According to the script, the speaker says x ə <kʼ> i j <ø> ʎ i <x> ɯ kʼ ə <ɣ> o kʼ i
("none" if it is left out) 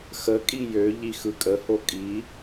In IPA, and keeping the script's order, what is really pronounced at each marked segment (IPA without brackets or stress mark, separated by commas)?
kʼ, ø, x, h